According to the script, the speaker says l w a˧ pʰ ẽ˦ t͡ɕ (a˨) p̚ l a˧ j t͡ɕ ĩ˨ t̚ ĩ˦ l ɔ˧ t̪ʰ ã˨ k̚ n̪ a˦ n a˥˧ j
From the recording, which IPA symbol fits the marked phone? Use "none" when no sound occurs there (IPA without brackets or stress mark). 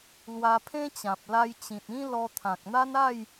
ã˨